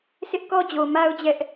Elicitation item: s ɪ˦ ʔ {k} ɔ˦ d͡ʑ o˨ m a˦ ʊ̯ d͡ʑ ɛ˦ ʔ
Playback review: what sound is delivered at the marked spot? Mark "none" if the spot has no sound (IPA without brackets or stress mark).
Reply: k